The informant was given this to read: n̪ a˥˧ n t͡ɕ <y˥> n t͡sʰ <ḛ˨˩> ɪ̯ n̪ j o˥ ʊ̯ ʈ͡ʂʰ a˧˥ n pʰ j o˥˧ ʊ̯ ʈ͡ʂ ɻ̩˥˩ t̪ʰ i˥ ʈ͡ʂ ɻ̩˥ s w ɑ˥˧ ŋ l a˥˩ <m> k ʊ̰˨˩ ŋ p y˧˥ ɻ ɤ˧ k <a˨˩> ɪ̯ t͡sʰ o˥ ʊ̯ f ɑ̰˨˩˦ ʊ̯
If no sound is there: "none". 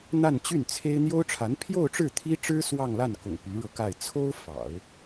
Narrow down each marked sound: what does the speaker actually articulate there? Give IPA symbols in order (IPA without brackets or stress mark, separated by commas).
y˥˩, e˥, n, a˥˩